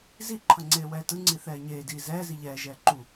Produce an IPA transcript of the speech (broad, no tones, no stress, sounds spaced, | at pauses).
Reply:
z i ǃʰ ʌ ŋ͡ǀ eː w ɛː t ɯ ŋ͡ǀ i θ ɛː ɲ eː d iː z ɛː z i ʎ ɛː ʒ ɛː ǃ u